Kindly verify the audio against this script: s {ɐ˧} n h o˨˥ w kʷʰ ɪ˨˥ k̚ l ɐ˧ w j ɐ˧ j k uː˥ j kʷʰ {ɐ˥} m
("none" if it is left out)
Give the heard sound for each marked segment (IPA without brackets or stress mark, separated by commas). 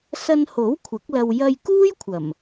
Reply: ɐ˧, ɐ˨˩